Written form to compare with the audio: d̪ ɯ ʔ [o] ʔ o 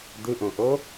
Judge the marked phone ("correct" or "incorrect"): incorrect